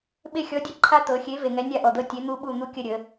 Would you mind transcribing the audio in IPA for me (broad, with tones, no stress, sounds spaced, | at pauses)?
ɓ e˦˨ xʲ ɔ˨˥ dʲ ə˦˥ ǃʰ a˦˥ t̪ ɤ˩˧ xʲ e˨˥ v e˨˩ ŋ ɛ˨˥ nʲ a˦˨ ʔ ɔ˨˩ d̪ ɤ˦˨ tʲ e˨˥ n̪ u˦˥ ɓ u˦˨ n̪ u˦˥ kʲ ə˦˨ ɾʲ ə˩˧